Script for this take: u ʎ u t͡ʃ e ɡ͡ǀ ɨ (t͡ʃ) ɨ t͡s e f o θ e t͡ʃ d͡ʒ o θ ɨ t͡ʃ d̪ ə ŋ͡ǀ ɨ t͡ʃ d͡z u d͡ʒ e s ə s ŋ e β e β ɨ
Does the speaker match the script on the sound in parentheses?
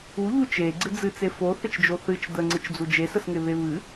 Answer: no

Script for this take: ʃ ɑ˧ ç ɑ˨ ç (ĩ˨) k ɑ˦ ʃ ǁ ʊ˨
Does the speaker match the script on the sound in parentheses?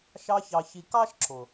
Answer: no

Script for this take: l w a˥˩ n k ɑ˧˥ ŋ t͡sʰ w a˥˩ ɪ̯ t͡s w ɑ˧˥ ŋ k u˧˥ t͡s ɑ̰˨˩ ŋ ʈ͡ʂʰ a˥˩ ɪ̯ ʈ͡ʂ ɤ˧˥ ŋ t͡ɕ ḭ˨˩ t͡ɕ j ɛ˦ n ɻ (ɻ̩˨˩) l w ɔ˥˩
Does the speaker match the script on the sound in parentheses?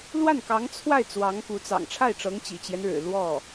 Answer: yes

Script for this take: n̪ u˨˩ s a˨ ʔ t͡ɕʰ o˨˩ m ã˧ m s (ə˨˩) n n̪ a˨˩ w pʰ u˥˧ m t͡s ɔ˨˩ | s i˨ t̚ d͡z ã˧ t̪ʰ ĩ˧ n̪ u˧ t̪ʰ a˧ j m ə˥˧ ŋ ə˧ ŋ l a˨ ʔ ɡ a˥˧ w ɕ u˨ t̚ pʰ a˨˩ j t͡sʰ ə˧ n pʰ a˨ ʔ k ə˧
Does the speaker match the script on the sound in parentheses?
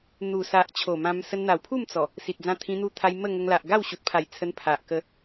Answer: no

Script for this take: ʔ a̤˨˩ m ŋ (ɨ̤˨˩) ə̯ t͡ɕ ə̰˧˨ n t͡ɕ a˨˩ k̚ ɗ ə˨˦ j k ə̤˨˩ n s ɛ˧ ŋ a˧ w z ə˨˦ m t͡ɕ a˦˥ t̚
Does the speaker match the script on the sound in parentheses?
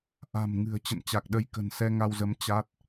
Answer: yes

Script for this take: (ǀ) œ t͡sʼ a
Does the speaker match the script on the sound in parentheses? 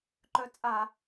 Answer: no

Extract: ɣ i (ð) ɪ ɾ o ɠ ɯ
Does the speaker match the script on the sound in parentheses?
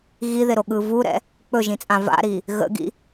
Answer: yes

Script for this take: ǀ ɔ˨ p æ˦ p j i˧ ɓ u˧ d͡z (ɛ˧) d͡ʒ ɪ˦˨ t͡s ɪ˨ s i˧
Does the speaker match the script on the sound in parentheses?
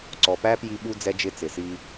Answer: no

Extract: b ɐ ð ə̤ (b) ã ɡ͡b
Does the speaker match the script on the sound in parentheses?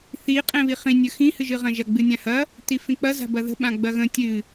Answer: no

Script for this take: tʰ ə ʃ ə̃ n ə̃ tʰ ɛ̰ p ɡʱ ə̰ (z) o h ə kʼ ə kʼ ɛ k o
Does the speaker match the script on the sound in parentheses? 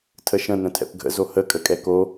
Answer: yes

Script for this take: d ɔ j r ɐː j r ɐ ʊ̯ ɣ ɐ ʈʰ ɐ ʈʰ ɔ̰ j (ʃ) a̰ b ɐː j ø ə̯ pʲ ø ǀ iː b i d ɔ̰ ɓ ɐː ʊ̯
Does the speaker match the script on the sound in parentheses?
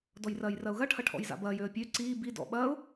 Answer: no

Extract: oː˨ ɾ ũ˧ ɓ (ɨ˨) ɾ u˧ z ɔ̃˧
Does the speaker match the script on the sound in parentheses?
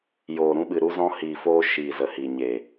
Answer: yes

